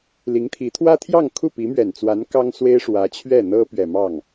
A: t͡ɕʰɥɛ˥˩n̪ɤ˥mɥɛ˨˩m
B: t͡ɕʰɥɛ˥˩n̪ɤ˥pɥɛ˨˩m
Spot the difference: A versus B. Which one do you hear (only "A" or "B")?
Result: B